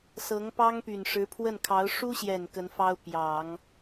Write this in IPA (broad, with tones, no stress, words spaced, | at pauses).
sɤ˧˥ŋpɑ˥ŋpy˨˩n ʂɻ̩˧˥pʰwə˥˩nkʰɑ˧˥ʊ̯ ʂu˥ɕjɛ˨˩n kə˧˥nfɑ˥ʊ̯ pjɑ˨˩˦ŋ